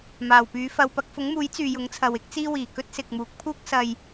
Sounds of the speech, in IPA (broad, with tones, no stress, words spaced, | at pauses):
maː˨˩wpyː˨˧fɐ˧w pɐ˧k̚fʊ˨˥ŋmuː˨˥j t͡syː˨jʊ˨˥ŋt͡sʰɐ˨w ɪ˥k̚t͡siː˥wiː˨˩ kɵ˥t̚sɪ˨k̚muː˨˥k̚ pʰuː˥k̚sɐ˧j